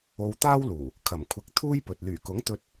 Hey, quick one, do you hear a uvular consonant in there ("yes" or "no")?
no